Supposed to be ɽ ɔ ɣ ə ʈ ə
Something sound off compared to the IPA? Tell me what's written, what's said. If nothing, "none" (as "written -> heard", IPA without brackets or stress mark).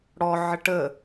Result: ɣ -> ʕ